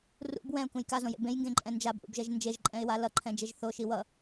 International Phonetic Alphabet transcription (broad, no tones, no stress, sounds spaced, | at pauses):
r ṵ b w ɛ̃ ʊ̯ k ũ j k a z õ j ḛ b ẽ j ŋ ɡ ẽ ǃʼ ɛ̃ n d͡ʒ a b ʔ ṵ b ʒ ɛ ʒ n d͡ʒ e ʒ ǃʼ ɛ̃ ɪ̯ w a l ʌ ǃʰ ɛ̃ d͡ʒ e ʒ θ o ʃ i w ʌ